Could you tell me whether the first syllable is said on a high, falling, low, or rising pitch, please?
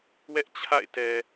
high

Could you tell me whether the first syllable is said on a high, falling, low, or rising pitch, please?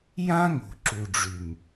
high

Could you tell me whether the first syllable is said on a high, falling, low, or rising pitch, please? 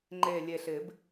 low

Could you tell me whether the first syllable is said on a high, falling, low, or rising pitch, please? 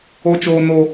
high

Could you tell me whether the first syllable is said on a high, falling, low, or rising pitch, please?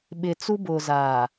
low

